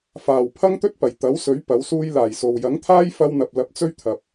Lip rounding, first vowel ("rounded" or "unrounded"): unrounded